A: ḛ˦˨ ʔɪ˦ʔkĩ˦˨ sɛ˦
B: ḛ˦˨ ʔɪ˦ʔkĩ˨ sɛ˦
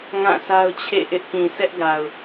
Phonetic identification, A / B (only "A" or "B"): B